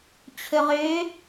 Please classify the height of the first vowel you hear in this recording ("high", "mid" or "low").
mid